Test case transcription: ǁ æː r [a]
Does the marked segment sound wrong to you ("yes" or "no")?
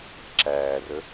yes